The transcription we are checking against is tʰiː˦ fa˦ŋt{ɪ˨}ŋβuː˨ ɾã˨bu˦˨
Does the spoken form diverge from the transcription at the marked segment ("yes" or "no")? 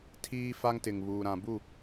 no